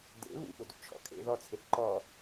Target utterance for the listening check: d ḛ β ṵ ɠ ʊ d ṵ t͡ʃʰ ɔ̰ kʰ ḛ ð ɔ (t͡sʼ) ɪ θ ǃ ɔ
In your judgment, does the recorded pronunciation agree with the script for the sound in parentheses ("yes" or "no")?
no